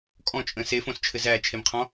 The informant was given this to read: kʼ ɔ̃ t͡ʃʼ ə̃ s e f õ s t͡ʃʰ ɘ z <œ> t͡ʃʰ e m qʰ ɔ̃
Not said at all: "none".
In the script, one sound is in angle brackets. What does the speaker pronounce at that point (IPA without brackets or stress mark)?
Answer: æ